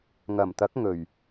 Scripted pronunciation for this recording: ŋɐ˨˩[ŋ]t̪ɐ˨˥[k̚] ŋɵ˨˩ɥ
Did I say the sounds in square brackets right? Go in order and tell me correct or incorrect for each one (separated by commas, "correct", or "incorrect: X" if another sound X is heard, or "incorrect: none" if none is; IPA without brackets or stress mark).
incorrect: m, correct